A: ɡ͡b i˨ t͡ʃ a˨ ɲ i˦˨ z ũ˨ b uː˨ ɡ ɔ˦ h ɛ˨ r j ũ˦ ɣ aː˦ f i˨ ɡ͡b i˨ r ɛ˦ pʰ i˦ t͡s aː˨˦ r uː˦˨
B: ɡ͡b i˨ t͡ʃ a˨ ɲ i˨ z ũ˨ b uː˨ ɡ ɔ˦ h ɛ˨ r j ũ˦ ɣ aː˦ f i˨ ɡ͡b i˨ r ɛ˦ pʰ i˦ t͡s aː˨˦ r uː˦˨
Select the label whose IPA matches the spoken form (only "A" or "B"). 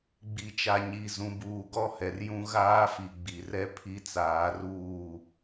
B